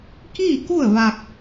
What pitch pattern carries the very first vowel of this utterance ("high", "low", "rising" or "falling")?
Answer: falling